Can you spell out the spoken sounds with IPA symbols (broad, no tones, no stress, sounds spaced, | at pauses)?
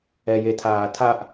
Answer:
ɛ j e tʰ aː tʰ a ʔ